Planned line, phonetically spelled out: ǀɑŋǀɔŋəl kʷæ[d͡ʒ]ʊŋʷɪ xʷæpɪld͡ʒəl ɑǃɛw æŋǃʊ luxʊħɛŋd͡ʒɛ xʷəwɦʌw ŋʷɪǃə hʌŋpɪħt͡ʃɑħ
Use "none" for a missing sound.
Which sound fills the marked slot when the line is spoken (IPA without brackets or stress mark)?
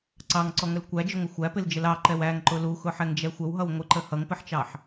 d͡ʒ